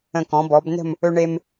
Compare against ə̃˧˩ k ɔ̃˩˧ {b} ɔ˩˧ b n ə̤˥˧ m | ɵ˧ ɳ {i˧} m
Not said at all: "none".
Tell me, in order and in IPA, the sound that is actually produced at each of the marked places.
b, e˧

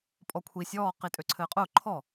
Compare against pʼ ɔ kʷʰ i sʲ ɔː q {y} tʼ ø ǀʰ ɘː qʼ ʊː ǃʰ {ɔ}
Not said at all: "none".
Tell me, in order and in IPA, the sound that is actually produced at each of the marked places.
i, ɔ

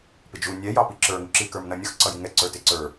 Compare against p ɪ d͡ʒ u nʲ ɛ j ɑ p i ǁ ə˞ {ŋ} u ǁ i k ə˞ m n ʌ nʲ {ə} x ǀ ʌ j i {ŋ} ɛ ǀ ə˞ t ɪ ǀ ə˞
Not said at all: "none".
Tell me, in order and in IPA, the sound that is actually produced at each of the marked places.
ŋ, ʌ, ŋ

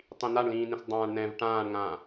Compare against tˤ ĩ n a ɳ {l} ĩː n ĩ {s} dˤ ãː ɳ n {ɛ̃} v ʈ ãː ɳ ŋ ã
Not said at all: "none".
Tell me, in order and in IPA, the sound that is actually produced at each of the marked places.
l, s, ɛ̃

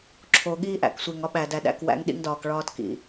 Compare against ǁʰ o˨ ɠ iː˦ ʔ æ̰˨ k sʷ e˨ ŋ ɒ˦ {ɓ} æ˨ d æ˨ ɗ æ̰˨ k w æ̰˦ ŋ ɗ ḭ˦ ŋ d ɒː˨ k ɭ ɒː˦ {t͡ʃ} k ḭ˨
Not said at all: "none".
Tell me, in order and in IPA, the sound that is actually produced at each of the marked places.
ɓ, t

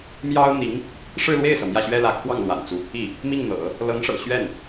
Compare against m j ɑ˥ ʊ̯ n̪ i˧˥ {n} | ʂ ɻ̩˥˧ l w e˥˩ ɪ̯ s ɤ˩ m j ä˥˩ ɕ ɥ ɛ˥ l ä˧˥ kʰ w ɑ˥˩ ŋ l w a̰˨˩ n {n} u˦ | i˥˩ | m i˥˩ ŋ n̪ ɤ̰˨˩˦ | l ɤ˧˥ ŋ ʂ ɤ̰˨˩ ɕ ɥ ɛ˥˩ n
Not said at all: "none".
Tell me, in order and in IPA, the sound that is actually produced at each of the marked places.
ŋ, t͡s

